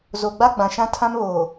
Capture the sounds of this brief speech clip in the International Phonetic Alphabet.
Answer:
z o˨ ɡ͡b a˦ ɡ͡b ã˨ ʃ ã˦ tʰ ã˦ m β oː˨

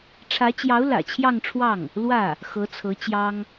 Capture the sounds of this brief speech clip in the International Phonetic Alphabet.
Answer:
ʈ͡ʂʰ ä˧˥ t͡ɕ j ɑ˧˥ ʊ̯ l ä̰˨˩ t͡ɕʰ j ɑ˥˧ ŋ ʈ͡ʂʰ w ɑ˥˩ ŋ | l w ä˥˩ | x ɤ˧˥ t͡sʰ ɤ˧˥ t͡ɕ j ɑ˥ ŋ

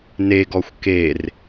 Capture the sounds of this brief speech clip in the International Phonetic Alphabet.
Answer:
n e ɡ ɔ xʷ k e r

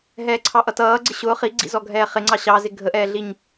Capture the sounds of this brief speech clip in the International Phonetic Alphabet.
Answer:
ɦ ɛː ǀʰ ɑ ʔ ʌ t ʌː ɡ͡ǀ ɪ ɕ ʊː χ i ɡ͡ǀ ḭ z ɔ ɡʱ ɛː χ ɪ ŋ͡ǀ ɑ ɕ ɑ z ɪ ɡʱ ə ʔ ɛː ɮ i ɲ

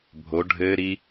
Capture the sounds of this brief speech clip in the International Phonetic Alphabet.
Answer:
bʱ o ɖʱ ɘː ɾ i

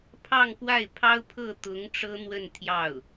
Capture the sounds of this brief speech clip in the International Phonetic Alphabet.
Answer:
pʰ ɑ˥˧ ŋ k w a˥˩ ɪ̯ pʰ ɑ˥ ʊ̯ pʰ ɤ˥˩ t̪ ʊ˧˥ ŋ ʈ͡ʂ ɤ˥ n̪ w ə˥˧ n t̪ʰ j ɑ˥˩ ʊ̯

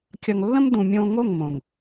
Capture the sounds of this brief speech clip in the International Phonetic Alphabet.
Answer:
kʲ ʌ˨ ŋ lː ə̃˦ m d̪ ũ˨ mʲ õ˧ ŋ o˦˨ ŋ m õ˨ ŋ

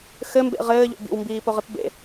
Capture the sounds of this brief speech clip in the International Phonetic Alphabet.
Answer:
x ɘ m b ḛ ʁ ɘː ʎ o̰ b ḭ w m b iː p o ʁ ɨ p b ḛ

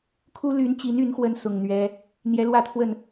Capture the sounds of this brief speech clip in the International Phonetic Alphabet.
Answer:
kʰ u˥ l y˧˥ n t͡ɕ i˧˥ n y˧˥ n x w ə˧˥ n s ʊ˨˩ ŋ n̪ ɥ ɛ˥ | n̪ j ɛ˧˥ l w ä˥˧ t̪ʰ w ə˥˩ n

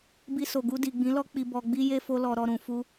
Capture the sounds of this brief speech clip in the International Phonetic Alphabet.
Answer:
b i˧ s o˨ ɡ u˧ d i˨ ɡ͡b ĩ˨˦ l ɔ˦ k͡p i˧ b ɔ˧ ɡ͡b i˦ j e˦ f o˧ l ɔ˨ ɾ ɔ˧ ɾ ũ˨ f u˧

